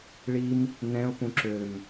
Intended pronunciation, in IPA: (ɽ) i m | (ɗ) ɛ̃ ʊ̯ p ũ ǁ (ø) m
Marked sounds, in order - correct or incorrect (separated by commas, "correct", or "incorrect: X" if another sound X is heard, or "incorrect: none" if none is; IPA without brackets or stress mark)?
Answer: incorrect: ɭ, incorrect: n, correct